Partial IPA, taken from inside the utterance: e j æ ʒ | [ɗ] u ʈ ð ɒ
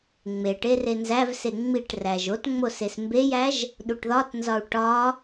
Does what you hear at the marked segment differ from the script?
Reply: no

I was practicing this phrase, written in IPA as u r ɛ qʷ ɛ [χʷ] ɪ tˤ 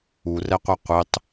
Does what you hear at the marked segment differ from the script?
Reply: yes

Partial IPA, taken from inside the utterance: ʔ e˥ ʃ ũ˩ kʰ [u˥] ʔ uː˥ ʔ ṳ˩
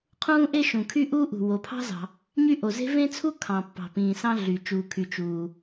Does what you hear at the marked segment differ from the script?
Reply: yes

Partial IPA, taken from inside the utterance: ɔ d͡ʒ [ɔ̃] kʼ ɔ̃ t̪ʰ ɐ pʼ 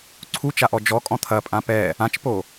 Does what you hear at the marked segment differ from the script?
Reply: yes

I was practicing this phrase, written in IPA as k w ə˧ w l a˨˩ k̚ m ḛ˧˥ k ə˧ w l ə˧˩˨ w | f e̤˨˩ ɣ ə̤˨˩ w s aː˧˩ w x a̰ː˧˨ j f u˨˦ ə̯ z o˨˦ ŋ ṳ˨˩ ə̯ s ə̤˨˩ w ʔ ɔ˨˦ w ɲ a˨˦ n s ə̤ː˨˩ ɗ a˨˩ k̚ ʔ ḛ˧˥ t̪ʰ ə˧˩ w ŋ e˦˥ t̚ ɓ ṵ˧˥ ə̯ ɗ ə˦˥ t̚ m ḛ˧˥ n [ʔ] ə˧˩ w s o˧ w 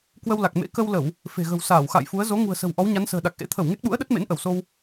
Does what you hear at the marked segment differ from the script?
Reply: no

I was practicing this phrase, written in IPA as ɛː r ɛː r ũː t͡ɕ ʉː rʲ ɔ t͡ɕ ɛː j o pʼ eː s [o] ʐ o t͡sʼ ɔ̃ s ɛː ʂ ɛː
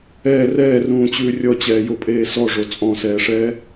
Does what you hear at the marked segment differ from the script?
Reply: yes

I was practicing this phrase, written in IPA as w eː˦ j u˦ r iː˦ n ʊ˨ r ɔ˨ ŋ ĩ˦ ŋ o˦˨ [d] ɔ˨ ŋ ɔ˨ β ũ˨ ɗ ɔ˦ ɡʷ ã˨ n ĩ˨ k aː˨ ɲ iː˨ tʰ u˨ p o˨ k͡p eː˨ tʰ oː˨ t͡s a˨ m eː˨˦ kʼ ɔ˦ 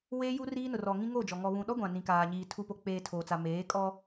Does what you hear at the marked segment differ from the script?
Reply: yes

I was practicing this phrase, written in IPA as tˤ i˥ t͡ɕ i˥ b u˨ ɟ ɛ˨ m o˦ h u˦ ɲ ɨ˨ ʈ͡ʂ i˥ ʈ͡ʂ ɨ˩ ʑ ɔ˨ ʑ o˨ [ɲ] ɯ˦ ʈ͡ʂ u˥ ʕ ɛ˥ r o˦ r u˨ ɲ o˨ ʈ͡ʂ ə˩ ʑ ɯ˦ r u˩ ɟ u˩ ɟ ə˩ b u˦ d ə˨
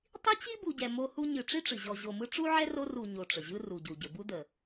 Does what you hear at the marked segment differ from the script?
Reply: yes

